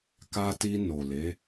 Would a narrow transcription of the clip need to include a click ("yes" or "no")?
no